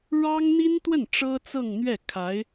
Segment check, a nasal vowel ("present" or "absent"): absent